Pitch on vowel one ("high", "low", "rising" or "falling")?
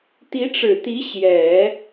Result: rising